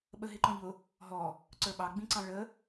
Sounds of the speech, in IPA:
ɓ ə ɦ ɪ ǃ ɔ̃ ʎ ʊ | ɦ ɔ | ǀ ə˞ ɓ ɑ ɡ͡b ĩ ǀ ɑ̃ ɭ ə

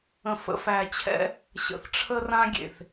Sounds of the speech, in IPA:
ə̃˨ f ə̰˨ f æ˨ t͡ɕʰ ɛ̰˦ | ɕ ə̰˨ θ ʈ͡ʂʰ ə˦ r ã˦ ɡʲ ḛ˨ θ

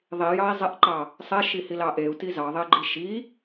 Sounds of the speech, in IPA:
ðˤ i j ɑ i̯ zˤ ɛ ʔ ǃ ɑ | sˤ ɛ ʃ i h i l ɑ ʔ e u̯ t i z ɑ ðˤ e ɡ͡ǃ i ʃ i

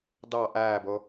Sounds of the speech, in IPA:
d ɑ ʔ æː b o

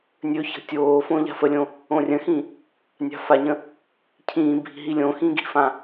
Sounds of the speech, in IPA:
nʲ ɵ ç ə̤ tʲ oː f õ ʎ a̤ f ə lʲ õ | õ rʲ ə̃ x ĩ | nʲ a̤ f a ɲ ə̃ | cʰ ĩː bʱ i̤ ɦ i lʲ õ x ĩ ɡ i̤ f ã

